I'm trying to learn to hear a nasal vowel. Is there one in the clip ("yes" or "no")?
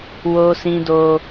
yes